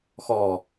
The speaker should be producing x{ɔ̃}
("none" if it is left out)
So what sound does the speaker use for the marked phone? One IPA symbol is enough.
ɔ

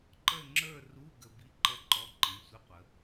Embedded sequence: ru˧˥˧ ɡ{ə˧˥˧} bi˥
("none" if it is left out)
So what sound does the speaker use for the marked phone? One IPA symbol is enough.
ə˧˥˧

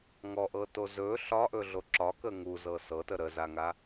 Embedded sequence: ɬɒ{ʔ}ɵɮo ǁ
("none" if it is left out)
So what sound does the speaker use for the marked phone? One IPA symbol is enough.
ʔ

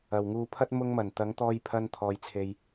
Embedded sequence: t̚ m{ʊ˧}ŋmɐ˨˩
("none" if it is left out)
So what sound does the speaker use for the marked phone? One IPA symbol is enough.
ʊ˧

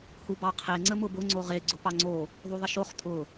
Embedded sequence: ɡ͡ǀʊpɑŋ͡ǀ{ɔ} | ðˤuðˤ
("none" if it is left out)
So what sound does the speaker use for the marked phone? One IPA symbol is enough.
o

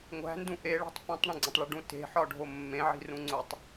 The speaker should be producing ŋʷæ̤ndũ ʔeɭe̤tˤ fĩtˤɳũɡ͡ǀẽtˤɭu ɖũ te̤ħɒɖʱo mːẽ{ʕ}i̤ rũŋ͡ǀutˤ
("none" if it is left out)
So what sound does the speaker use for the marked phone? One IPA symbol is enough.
ʕ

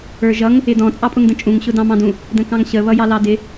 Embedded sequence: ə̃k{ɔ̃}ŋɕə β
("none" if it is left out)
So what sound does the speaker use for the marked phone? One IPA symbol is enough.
ɑ̃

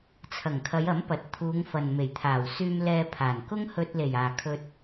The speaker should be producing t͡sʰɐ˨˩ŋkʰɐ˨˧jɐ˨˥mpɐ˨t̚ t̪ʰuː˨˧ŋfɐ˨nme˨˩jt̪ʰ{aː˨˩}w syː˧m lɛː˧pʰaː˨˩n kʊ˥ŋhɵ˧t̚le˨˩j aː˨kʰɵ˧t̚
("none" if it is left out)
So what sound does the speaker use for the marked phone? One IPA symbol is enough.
aː˨˩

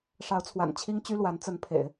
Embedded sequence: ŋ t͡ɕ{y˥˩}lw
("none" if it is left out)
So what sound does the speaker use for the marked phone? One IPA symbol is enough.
y˥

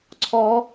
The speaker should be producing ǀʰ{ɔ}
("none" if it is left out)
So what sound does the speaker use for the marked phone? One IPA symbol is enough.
ɔ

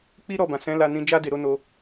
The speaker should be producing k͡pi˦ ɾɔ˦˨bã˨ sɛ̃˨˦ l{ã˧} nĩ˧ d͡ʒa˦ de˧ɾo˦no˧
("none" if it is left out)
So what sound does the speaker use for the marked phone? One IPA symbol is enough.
a˧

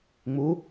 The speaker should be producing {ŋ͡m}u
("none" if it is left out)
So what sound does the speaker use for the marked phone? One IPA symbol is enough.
ŋ͡m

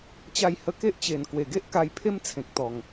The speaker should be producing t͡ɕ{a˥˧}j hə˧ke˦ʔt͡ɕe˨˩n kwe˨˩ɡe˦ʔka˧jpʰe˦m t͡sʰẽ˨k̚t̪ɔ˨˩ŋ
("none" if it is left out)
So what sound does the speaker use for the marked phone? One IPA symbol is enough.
a˥˧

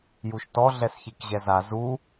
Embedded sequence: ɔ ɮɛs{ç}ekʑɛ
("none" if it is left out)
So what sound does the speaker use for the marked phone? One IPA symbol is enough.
ç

